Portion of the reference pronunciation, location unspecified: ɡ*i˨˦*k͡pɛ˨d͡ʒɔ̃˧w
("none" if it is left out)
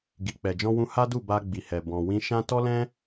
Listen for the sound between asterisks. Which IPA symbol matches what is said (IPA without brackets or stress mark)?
i˨